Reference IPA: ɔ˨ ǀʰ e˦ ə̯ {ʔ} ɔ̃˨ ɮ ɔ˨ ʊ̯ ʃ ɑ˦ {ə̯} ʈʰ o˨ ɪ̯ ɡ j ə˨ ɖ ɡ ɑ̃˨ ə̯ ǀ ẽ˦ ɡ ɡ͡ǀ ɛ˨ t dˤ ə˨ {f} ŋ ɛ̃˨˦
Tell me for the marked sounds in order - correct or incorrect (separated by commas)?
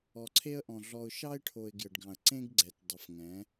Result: correct, incorrect, correct